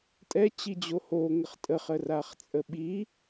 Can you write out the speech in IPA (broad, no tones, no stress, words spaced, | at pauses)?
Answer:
tʼɛt͡ɕid͡ʑo hoŋəχ tʼəχəraχt͡sʼə ɓi